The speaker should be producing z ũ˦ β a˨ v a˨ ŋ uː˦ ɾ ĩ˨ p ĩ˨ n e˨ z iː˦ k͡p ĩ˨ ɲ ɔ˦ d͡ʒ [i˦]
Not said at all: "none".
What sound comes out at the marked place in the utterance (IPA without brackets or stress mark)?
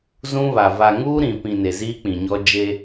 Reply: e˦